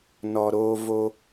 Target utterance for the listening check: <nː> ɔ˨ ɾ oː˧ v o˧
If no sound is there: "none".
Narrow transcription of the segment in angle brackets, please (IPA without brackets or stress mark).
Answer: n